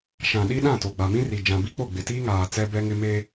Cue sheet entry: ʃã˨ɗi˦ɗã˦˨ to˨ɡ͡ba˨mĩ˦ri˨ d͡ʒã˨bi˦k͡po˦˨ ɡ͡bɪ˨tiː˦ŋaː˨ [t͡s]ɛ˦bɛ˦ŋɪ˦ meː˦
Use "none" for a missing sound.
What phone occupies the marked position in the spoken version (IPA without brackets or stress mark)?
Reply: t͡s